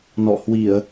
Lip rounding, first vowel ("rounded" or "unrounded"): rounded